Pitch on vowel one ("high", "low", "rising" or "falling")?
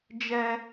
high